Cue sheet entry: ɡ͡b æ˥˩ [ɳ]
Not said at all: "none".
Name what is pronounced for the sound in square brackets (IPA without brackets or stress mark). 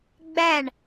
ɳ